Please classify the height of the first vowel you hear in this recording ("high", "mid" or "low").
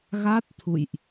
low